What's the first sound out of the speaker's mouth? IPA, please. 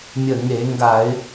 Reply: mʲ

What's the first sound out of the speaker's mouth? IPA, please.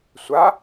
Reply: sʷ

